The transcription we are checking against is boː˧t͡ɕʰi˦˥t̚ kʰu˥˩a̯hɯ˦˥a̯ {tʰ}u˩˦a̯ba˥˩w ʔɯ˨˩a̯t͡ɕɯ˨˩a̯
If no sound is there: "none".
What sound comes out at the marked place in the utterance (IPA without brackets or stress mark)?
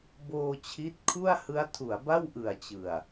tʰ